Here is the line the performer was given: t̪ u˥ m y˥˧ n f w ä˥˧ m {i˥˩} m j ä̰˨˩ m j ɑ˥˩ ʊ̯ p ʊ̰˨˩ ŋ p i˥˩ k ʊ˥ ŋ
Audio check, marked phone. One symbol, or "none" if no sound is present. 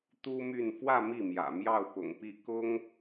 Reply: i˥˩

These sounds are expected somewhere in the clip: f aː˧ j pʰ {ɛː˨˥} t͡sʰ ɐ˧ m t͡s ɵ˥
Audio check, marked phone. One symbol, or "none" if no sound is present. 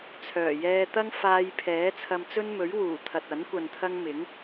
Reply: ɛː˨˥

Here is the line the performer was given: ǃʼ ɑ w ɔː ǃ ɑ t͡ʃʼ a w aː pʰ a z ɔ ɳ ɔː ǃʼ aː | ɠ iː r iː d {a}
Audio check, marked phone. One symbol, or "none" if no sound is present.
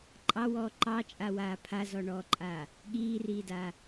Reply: aː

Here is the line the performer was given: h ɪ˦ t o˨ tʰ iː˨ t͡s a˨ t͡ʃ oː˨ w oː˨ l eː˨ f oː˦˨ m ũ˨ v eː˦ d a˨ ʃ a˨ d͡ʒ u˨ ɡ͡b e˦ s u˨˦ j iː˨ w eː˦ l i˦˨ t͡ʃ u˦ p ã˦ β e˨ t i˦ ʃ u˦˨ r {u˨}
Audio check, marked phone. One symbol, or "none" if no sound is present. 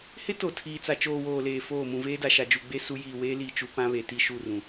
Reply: ũ˨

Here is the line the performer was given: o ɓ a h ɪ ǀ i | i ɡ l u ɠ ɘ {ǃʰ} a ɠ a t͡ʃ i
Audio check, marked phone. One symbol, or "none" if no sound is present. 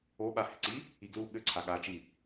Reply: ǀʰ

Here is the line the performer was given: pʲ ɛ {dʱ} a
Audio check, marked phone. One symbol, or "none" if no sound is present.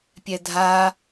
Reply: dʱ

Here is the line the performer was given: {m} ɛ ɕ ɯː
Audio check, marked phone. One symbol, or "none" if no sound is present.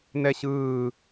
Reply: n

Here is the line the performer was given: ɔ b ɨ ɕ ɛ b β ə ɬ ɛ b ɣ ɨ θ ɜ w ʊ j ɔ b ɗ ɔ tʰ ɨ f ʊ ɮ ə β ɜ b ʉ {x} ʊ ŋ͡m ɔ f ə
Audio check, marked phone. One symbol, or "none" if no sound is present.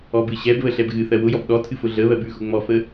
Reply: x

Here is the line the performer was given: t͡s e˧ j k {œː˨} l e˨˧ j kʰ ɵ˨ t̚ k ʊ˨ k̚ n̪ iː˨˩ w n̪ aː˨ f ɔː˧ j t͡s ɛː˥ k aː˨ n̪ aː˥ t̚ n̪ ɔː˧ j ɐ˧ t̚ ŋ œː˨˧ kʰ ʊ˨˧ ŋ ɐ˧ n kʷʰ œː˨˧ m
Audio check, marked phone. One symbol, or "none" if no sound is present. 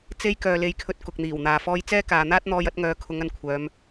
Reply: œː˨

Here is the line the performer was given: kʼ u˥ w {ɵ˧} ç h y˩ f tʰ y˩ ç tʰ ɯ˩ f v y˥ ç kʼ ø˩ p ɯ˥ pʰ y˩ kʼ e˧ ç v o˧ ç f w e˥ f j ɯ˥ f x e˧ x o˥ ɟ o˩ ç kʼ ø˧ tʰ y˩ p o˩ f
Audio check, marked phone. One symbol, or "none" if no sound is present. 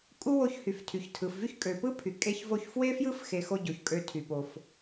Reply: o˧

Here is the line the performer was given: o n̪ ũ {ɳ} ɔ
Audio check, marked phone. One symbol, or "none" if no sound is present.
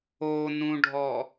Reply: ɖʱ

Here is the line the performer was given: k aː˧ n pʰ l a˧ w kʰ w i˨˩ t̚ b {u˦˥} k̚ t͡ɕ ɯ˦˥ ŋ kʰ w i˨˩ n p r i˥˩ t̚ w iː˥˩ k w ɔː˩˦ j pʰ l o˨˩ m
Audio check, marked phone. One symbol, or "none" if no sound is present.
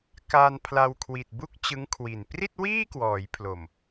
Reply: u˥˩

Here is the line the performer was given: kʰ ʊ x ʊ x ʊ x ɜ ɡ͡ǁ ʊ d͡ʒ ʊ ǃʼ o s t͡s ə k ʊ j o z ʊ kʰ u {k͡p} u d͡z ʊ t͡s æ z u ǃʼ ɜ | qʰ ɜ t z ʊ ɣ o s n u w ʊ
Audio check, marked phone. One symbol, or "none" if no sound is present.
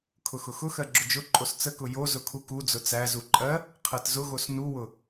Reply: k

